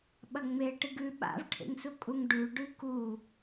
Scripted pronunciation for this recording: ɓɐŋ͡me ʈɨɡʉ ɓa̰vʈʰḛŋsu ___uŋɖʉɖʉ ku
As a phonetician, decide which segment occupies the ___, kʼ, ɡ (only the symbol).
kʼ